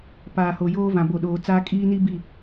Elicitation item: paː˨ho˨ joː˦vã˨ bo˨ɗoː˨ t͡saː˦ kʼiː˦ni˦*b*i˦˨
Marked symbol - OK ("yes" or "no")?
yes